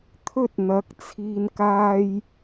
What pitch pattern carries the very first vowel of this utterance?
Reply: high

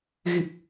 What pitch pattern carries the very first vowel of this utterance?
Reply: low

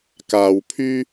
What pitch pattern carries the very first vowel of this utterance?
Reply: low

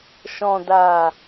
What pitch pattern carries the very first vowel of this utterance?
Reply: low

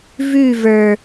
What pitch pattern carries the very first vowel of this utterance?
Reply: falling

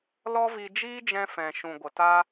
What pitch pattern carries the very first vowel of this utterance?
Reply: high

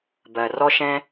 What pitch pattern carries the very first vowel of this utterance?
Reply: low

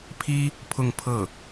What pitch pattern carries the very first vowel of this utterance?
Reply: high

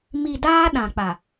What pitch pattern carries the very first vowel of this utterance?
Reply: low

